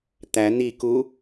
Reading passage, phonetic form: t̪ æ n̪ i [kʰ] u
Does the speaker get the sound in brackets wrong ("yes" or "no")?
yes